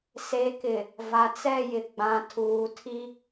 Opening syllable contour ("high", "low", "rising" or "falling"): rising